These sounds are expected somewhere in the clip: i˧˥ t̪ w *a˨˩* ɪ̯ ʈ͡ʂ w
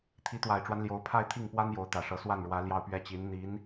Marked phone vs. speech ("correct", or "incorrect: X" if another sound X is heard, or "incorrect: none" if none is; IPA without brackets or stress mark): correct